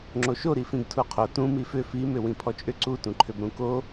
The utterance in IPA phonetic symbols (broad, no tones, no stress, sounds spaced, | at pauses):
ŋ͡ǁ o ʃ o ɾ i f ĩ ɡ tʰ u qʰ o t ũ m i f ʏ f i m ʏ w ĩ pʰ ɔ t͡ʃʼ ʏ ǀ u t ũ ǃʰ ʏ b ɾ ũ k o